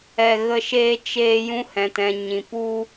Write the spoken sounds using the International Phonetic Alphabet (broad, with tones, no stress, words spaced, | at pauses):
ɛ˧ ɣə˧ʃeː˧ t͡ʃeː˧ jũ˧hɛ̃˨tɛ̃˨ ɲĩ˨pu˧